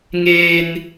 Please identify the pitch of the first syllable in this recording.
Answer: high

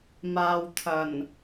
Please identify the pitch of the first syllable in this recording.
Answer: low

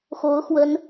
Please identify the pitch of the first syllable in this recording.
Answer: rising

